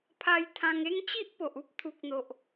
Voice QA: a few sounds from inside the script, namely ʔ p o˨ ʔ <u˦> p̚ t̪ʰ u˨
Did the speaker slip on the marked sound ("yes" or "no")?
no